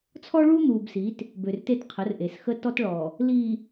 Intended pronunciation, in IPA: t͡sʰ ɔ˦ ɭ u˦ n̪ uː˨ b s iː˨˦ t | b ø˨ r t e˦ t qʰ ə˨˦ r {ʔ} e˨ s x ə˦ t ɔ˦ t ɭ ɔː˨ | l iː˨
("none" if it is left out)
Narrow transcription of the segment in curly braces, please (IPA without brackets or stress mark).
ʔ